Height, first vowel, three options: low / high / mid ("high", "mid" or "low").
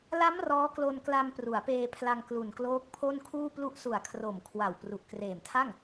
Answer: low